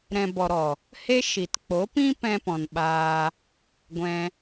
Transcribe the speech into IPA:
ɾɛ̃˨bɔ˨ɾɔ˨ | he˦ʃi˨t k͡po˨˦pĩ˦ pɛ̃˧pɔ̃˨nɓaː˧ | ɡʷɛ̃˧

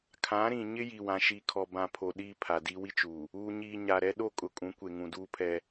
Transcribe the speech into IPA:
kʰã˨˦ɾĩ˨ ɲɪ˦ ji˨wã˨ ʃi˨kʰɔ˨bã˨ pʰo˨ ɗiː˦pʰa˨di˦ wi˦t͡ʃuː˨ | uː˨ɲiː˨ ɲa˨ɾɛ˦ ɗo˦˨kʼʊ˨ kʼũ˨˦ kʷe˨ŋũ˨duː˦pʰɛ˦

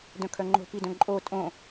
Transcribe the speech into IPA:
dœ̃kʰœŋ͡ǃo̤ pidœ̃ǃʼo tʼõ

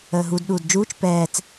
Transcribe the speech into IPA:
əːɦud ɗuːdd͡ʒuːt͡ʃ pɛːt͡s

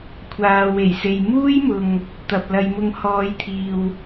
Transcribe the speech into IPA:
kʷʰaː˨ we˨˩jse˨jmuː˥jmʊ˨ŋ | t̪ɐ˨p̚lɐ˨˧jmʊ˧ŋ hɔː˨˧jt̪ʰiː˨w

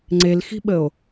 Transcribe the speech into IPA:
ŋ͡ǀelxi̤ɓəo̯

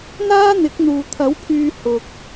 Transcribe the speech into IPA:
n̪aː˥n̪ɪ˨˥k̚ n̪uː˨ t̪ʰɐ˨˥wpʰyː˧ hʊ˨k̚

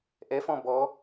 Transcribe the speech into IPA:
ʔɛfɔ̃ bɔ

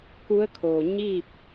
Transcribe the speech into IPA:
ku˧˥ə̯kʰoː˩ ɲi˥˨p̚

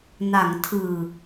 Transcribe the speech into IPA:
na˩˦ŋtʰɯː˨˩

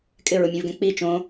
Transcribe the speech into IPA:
kʼɪɹʊmʲẽvɡɛ̃ k͡pi t͡ʃõ

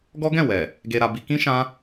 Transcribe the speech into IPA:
ɡɔ˦ɡɛ̃˦˨wɛ˨ | ɡe˧ɾa˧bi˧ kĩ˦ ʃã˦

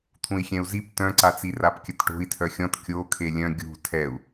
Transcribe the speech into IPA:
t̪ʰũi̯xʲɛ̃u̯zip tœ̃ǀat͡si rapkʲətʈo̤i̯ tʰœxʲɔ̃t kʲo kʰelʲœ̃ ɡʲṳ tʰɛu̯

